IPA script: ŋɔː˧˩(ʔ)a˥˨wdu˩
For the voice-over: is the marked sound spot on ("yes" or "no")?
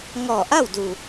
yes